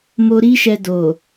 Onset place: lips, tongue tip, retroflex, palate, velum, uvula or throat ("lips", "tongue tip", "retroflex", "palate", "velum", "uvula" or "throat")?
lips